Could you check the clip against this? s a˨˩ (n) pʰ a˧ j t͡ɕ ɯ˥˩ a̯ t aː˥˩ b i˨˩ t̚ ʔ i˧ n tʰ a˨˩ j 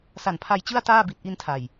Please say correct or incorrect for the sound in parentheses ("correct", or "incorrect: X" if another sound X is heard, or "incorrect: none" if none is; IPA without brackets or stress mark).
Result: correct